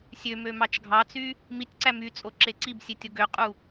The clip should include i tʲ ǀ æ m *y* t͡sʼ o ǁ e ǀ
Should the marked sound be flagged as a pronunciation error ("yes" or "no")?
no